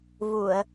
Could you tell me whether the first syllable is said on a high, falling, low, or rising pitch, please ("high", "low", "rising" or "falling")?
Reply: low